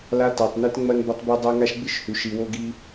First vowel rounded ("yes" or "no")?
no